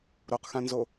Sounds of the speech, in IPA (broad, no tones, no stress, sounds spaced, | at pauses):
ɾ o q x ã n z o